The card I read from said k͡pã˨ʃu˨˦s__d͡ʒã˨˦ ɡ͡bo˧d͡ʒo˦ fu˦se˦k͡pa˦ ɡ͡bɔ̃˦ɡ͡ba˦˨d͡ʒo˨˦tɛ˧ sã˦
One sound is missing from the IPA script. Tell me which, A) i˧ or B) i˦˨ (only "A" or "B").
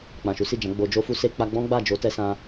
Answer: B